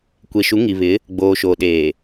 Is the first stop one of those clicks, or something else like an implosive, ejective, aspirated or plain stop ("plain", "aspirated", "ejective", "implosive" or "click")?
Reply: plain